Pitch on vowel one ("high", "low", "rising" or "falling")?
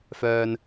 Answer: low